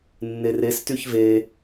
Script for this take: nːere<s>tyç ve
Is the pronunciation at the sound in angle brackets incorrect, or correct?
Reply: correct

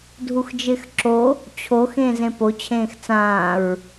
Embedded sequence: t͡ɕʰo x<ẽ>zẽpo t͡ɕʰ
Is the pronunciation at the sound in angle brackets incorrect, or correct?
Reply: incorrect: ẽː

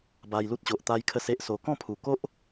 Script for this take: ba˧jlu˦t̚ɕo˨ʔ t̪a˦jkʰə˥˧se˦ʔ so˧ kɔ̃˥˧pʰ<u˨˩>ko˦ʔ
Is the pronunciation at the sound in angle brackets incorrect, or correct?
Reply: correct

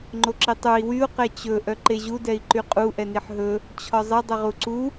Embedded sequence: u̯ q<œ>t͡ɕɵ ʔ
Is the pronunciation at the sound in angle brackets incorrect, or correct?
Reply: incorrect: ɛ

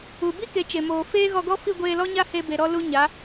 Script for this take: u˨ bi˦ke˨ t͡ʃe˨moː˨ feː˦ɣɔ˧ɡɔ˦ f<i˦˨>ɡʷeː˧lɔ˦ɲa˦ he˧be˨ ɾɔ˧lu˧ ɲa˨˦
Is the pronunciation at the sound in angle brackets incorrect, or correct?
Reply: correct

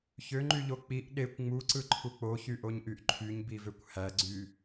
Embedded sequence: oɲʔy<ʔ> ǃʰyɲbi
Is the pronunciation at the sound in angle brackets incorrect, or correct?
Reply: correct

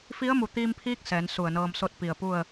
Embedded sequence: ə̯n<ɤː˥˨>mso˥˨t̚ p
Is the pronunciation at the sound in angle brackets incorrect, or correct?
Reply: incorrect: ɤː˧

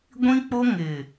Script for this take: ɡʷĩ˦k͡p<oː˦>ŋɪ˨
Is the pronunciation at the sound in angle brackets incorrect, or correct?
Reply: incorrect: o˦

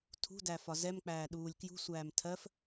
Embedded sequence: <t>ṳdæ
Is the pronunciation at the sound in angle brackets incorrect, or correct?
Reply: incorrect: tʰ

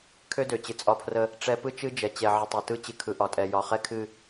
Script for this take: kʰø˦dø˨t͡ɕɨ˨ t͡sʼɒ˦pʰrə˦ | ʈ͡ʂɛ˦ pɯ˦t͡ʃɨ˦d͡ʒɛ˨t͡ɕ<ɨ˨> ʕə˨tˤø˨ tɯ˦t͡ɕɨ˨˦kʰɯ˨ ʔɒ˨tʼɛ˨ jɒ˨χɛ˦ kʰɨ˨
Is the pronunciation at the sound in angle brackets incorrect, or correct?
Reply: incorrect: ɛ˨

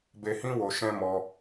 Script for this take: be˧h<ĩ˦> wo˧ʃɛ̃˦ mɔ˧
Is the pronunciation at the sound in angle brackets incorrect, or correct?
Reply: correct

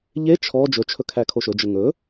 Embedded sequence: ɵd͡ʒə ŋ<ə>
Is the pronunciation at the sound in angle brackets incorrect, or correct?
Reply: incorrect: ɵ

